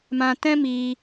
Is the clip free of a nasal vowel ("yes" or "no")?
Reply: no